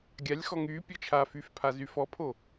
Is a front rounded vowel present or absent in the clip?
present